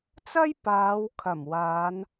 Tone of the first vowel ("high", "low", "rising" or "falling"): high